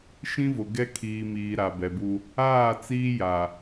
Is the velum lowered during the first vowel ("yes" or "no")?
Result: yes